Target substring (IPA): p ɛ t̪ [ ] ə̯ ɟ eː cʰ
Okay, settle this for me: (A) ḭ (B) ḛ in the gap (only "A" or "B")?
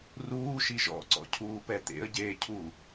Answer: B